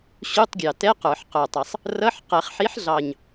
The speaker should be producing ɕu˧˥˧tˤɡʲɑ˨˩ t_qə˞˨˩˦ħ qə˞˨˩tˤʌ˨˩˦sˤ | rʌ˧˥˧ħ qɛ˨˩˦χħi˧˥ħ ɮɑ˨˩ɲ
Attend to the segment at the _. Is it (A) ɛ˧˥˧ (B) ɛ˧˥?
A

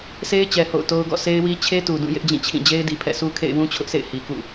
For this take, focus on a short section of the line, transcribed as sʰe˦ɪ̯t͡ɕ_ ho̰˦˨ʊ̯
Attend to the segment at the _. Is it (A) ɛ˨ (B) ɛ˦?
A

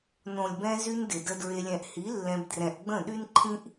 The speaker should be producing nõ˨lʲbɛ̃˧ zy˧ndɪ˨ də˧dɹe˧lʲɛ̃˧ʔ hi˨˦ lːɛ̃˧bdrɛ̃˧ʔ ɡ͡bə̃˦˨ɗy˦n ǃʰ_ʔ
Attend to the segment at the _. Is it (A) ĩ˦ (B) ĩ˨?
A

